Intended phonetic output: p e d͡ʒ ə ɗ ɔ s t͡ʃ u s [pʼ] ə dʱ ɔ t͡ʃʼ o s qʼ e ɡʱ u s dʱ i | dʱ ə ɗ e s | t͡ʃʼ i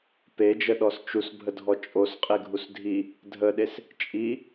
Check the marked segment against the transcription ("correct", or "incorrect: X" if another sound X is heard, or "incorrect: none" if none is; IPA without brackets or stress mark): incorrect: bʱ